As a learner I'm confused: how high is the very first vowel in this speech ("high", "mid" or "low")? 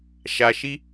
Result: low